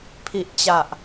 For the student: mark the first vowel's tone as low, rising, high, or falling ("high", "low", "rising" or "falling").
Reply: low